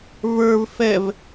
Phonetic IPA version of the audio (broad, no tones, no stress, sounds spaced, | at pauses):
v ə˞ v f ɛ v